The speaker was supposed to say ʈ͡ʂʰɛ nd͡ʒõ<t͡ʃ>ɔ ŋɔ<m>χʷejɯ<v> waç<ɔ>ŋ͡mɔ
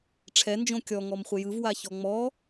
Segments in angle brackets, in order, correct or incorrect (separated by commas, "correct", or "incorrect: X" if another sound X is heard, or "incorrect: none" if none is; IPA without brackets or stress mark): incorrect: kʲ, correct, correct, correct